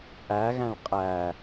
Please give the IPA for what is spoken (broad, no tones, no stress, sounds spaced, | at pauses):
ʔ æ ɣ æ̃ ɭ qʼ æ